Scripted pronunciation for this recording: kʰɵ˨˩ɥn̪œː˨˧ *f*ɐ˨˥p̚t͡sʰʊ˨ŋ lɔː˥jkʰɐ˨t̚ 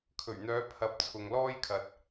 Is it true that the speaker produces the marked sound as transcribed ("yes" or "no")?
no